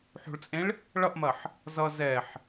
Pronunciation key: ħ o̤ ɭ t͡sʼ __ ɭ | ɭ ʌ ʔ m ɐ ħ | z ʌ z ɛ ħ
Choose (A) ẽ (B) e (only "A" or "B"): A